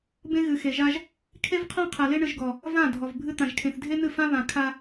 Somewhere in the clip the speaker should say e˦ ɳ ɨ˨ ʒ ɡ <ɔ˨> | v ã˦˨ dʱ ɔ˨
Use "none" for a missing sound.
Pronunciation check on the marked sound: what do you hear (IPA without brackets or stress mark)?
ɔ˨